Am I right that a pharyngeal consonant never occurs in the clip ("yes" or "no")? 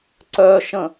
yes